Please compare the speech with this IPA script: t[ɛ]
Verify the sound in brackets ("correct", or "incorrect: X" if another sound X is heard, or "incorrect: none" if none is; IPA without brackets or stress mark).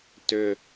incorrect: ʏ